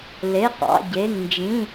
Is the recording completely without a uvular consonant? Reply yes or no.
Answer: no